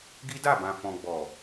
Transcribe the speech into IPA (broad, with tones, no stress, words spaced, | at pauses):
ɡi˦da˦˨ bã˨fɔ̃˨ɡ͡bɔ˨